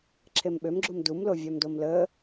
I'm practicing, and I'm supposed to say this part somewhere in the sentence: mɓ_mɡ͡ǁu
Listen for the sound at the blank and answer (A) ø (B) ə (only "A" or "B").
A